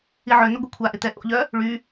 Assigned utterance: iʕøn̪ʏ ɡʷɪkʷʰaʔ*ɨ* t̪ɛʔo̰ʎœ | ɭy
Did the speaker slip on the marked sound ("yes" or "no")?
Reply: yes